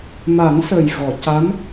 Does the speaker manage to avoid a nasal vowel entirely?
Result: yes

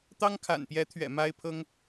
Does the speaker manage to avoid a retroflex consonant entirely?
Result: yes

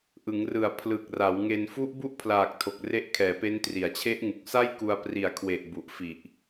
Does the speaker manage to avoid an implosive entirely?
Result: yes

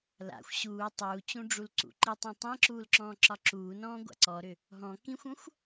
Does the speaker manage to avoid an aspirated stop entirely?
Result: yes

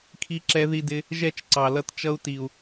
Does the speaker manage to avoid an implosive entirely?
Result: yes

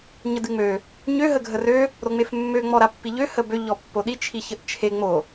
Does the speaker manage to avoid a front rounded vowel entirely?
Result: no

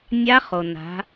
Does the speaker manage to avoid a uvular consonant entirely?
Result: no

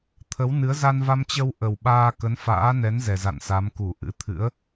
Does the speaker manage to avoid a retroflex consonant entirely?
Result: yes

